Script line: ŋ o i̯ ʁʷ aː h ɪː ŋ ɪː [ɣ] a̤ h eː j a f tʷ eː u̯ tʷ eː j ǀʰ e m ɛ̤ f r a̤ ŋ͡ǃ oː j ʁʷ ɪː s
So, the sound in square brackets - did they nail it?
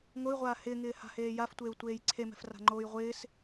no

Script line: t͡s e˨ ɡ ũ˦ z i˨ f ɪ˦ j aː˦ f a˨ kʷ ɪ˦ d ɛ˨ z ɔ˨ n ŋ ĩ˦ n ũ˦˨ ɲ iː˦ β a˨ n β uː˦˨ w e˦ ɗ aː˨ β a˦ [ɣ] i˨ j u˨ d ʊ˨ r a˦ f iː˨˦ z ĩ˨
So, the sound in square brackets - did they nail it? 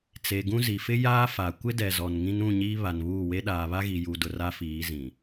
yes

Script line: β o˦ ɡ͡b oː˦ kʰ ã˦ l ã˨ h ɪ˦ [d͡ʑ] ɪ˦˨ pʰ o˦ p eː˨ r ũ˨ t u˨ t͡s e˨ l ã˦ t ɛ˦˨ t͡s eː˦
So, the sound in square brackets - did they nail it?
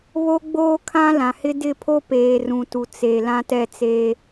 no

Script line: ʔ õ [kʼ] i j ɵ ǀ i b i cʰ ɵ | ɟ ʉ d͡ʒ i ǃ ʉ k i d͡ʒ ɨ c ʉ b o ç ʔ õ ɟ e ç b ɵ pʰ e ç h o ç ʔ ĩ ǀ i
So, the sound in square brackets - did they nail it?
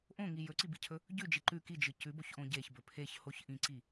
no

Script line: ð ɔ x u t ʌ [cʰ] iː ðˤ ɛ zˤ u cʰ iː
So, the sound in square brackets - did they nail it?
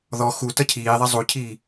yes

